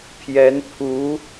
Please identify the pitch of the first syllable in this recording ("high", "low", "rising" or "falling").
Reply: rising